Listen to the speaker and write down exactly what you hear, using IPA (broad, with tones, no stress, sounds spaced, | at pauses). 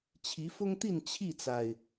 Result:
t͡ɕʰ i˨˦ f ʊ˦ ŋ t̪ i˥˨ n t͡ɕʰ i˥˨ t͡s a˩ ɪ̯